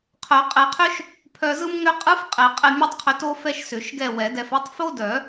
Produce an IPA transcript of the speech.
qʰ œ˨˩˦ qʼ ɛ˨˩˦ qʰ ʏ˥ ʃ | pʰ œ˧ z ɯ˥ m ŋ ʏ˥ qʼ ɯ˥ f qʼ ɛ˨˩˦ qʼ ɛ˧ mʲ o˥ tˤ qʰ ʏ˧ t o˥ f ɛ˥ ʃ s ʏ˨˩˦ ʃ ɡ ɛ˥˨ w ɛ˨˩˦ d ɛ˧ f ɛ˥ tˤ f o˥ d œ˨˩˦

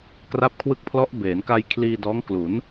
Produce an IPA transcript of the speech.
k r a˦˥ p̚ kʰ w ɯ˦˥ k̚ pʰ l ɔ˦˥ ʔ b eː˩˦ n k a˧ j kʰ l iː˧ d ɔː˦˥ ŋ k l u˩˦ n

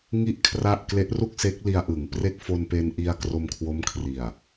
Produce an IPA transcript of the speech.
ŋ i˥˩ ʔ kʰ r a˥˩ ʔ k l e˦˥ ʔ r u˥˩ k̚ s e˦˥ k̚ l i˧ a̯ ʔ ɯ˩˦ ŋ p r e˥˩ k̚ f o˧ n p e˧ n ʔ i˧ a̯ k r o˧ m kʰ w o˦˥ m kʰ r i˨˩ a̯

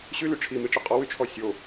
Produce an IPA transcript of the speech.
ɕ y l y ʈ͡ʂʰ i m i ʈ͡ʂ ɘ qʼ ɔ w y t͡ʃʰ ɔ sʲ o

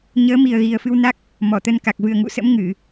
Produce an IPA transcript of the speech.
ɲ əː˨˦ m i˨˩ ə̯ ɣ i˨˩ ə̯ f ɨ˧ w n a˦˥ k̚ | m ɔ˧˩ t̪ ə˧ n k a˨˩ k̚ v ɨ˨˩ ə̯ ŋ ṵ˧˨ s ə̰˧˥ m ŋ ɨ˧˩˨

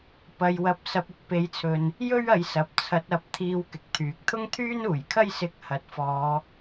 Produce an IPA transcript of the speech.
p ɐ˨ j w ɐ˨˥ p̚ s ɐ˧ p̚ ʊ˧ k̚ p e˨˥ j t͡sʰ ɵ˨ n | j ɵ˥ ɥ ɐ˨˧ j s ɐ˨ p̚ t͡sʰ ɐ˨˥ t̚ ɐ˨ p̚ t̪ʰ iː˨˧ w k ɪ˨ k̚ t̪ʰ yː˨˥ k̚ t̪ʰ ʊ˥ ŋ t̪ʰ yː˥ n uː˨˩ j kʰ ɐ˥ j s ɪ˧ k̚ h ɐ˨ t̚ f ɔː˨˧

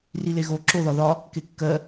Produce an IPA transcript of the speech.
r i l e ɣ o ǁ o ð ɒ ð ɒ | k e kː ɜ

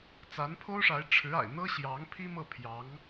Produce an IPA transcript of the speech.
t͡s a˧˥ n pʰ o˥ ʊ̯ ʂ a˧˥ ɪ̯ ʈ͡ʂʰ ɻ̩˧˥ a̰˨˩ ɪ̯ n̪ ɤ˥ ɕ j ɑ˧˥ ŋ pʰ i˥ m ɤ˥˩ pʰ j ɑ˧˥ ŋ

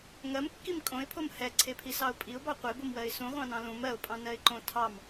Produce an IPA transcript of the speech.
ŋ ɜ m kː i m kʼ õ ɪ̯ pʰ o m h ɛ ǀʰ e pʰ i s ɑ ʊ̯ pʼ i ʊ̯ b ɑ qʷ e b o m w ɜ ɪ̯ s ũ ʁʷ ɑ̃ n ɑ̃ l ũ m ɜ ʊ̯ pʼ ɑ̃ n ɜ ɪ̯ ǃ õ tʰ ɑ m

